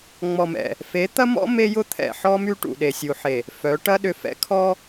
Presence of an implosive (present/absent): present